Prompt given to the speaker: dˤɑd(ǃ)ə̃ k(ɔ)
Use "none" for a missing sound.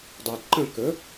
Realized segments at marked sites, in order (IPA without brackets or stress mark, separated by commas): ǃ, ə